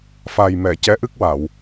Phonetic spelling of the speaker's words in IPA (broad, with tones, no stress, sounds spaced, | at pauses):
f a˨˩ j m ɛ˨˩˨ c ɛ˧˥ ʔ ɨ˦˥ k̚ w a˨˩˨ w